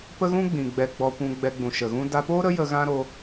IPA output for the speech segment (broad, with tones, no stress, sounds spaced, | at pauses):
p ə˦ ɣ ũ˦ ɡ͡b ĩ˨ ɡ͡b ɛ˧ ɡ͡b ɔ˧ kʷ ũ˧ ɡ͡b ɛ˧ ɡ͡b ũ˨ ʃ ə˨ ɣ ũ˦ d a˧ p oː˦ ɾ ə˦ j ə˧ ɣ ã˦ ɾ o˧